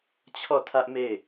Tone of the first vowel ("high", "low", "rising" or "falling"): falling